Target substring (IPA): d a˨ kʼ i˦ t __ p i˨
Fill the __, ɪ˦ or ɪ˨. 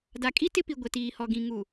ɪ˦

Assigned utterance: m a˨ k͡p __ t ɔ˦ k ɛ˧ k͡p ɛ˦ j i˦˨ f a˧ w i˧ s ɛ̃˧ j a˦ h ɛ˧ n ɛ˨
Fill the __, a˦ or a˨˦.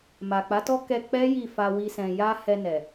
a˨˦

